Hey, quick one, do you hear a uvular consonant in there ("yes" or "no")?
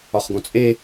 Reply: yes